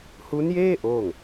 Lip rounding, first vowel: rounded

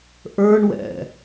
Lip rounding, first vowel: unrounded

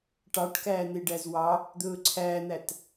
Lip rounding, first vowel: unrounded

